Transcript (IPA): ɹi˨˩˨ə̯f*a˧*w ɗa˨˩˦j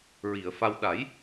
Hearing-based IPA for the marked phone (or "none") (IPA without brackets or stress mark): a˧